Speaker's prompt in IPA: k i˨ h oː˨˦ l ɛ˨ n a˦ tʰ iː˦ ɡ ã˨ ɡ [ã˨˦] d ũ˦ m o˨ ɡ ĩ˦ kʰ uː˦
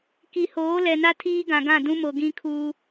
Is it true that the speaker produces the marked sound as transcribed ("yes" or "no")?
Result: no